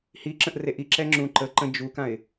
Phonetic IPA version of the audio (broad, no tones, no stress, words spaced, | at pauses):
hiǁə̃ʔ reʔiǁɛ ŋ͡ǁũǃəǃə̃ d͡ʒukãɪ̯